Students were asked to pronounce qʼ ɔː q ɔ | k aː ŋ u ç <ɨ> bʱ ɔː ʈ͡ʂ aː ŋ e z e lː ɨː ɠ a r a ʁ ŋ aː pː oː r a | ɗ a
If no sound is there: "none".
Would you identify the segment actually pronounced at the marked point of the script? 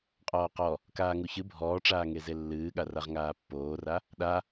ɨ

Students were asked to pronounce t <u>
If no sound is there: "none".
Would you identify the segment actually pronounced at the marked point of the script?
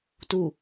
u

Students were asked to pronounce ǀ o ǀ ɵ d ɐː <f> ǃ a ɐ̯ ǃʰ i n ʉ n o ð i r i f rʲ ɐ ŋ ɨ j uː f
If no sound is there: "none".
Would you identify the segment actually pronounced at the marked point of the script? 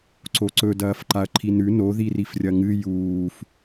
f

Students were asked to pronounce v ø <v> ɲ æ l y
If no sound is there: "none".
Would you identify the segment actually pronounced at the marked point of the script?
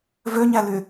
none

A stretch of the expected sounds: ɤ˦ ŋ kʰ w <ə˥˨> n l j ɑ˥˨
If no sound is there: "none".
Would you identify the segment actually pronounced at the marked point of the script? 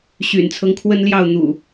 ə˦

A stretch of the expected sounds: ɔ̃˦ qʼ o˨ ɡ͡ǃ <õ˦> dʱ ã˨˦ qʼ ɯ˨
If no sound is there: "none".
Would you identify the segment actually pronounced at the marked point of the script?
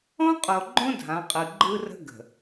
õ˦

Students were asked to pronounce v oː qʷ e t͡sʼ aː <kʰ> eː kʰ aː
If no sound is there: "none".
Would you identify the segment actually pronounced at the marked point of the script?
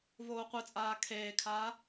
kʰ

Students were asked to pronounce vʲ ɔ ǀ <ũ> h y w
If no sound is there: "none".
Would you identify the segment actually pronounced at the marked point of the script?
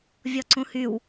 ũ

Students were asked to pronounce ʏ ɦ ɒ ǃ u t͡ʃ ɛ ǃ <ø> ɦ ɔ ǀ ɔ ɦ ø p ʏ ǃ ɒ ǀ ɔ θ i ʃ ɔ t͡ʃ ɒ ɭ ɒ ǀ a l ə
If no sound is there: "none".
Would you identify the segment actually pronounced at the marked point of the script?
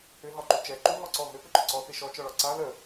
u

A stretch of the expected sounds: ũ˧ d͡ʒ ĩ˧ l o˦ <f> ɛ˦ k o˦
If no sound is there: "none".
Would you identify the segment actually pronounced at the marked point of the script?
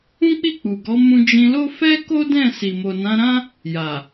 f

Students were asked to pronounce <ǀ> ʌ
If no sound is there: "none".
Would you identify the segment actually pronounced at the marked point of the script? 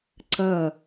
ǀ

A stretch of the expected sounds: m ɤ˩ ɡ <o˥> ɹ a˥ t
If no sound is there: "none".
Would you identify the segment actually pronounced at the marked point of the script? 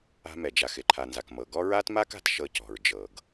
ɔ˥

